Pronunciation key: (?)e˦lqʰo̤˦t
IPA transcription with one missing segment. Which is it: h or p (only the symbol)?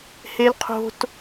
h